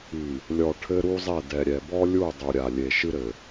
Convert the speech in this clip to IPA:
i˨ | lʲɔ˨ ʈʰɘ˦ɾu˦zˤɛ˦˨ dɛ˨ɾʲɛ˨bɔ˦lʲu˦˨ dˤu˨ɾʲa˨lʲe˨ ʃɨ˦ɾɘ˨

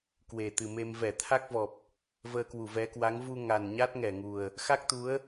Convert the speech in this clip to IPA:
kwe˨˩t̪ɨ˨˩ me˧m vɛ˧˩t̪ʰa˦˥k̚vɔ˨˩p̚ | vəː˧kwu˧˩vɛ˨˦kwa˨˦ŋ vu˧ŋa˨˩n ɲa˦˥t̚ŋɛ˧˩ŋu˨˩ə̯ | xa˦˥k̚t̪u˨˦ə̯

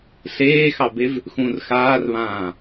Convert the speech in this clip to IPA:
ɬeːxɑbev | xũr xaːrβãː

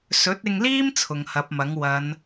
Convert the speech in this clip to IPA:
sɵ˨˥t̚ɪ˧ŋliː˥m t͡sʰʊ˨ŋhɐ˨˥p̚mɐ˨˥ŋ wɐ˨˧n

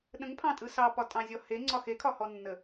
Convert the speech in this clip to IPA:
ɗə̃ŋpʰɑ̃tʼɯ sɑpɒtʼɑ̃zʲɔ heŋ͡ǀɒ xekʰɒhɔnːə

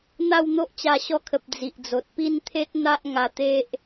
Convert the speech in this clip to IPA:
n̪a˥˧wn̪o˦ʔt͡ɕa˧ ɕɔ˧kʰə˨p̚ d͡zi˨ʔd͡zo˨t̚ pi˥˧nt̪ʰe˦t̚ n̪a˦ʔŋa˧t̪e˦ʔ

